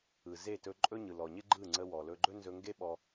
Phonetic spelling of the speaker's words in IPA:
ɯ˨ z e˦˨ t ɵ˧ ǃʼ ɵ˦ ɲ ɯ˨ l ɔ˨ ɲ ɪ˦ ɡ͡ǃ ɯ˦˨ ŋ͡ǀ ə˧ w ɔ˨ l ɵ˧ ɡ͡ǃ ɵ˦ n z ɵ˧ ŋ ɡ e˦ ɓ ɔ˧

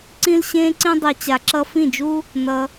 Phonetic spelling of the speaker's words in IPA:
ǀ ĩ˦ l ɕ ẽː˦ ǀ ĩ˦ dˤ i˧ t͡ɕ a˧ ǁ ʌ˦ f ĩ˦˨ d͡ʒ u˦ | n ʌ˧

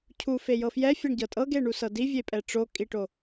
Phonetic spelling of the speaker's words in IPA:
cʰ u f e j ɤ f j ɛ fʲ ɤ ɳ ɟ ɤ tʼ ɤ ɡ e ɳ u s ɤ d i vʲ e pʼ ɛ ʈ͡ʂ o kʼ i ʈ o

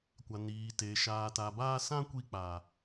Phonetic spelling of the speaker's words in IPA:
kʷ a˨ n iː˨ t e˨ ʃ aː˨ t a˨ b aː˧ s ã˦ kʷ i˧ k͡p a˨

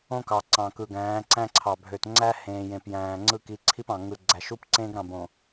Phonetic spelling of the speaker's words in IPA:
õ˦ k ɑ˨ ǀ ɑ̃˨ k ɯ˨ ɡ æ̃ː˨˦ ǀ æ̃˦ ǀʰ ɑ˨ bʱ ø˨ t ŋ͡ǀ æ˦ h ẽː˨ j ẽ˨ p j æ̃ː˨ ŋ͡ǀ ɯ˦˨ k i˨˦ ǀʰ i˦ p ɑ̃˨ ŋ ɯ˨ ɡ͡ǀ æ˨ ʃ u˦ p ǀ ẽː˦ ɡ ɾ ɑ̃˨ b õ˨

